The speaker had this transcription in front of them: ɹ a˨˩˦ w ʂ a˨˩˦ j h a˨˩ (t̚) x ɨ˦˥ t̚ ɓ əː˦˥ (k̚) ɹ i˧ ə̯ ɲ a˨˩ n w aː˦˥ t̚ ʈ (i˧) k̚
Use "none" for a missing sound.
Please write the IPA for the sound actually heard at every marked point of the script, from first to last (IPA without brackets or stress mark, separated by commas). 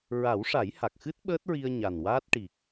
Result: k̚, t̚, i˨˩